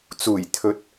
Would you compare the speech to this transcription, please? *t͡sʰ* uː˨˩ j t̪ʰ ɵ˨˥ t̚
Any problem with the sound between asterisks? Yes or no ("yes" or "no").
yes